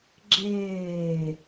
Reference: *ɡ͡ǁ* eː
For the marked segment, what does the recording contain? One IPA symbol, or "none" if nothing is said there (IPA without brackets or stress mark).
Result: ɡ͡ǁ